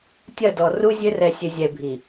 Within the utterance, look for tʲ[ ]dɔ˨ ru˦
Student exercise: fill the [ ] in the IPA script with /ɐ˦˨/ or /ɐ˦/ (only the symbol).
ɐ˦˨